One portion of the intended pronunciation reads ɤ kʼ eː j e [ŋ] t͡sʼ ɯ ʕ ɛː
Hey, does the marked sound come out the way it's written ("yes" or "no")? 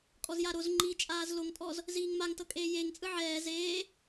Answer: yes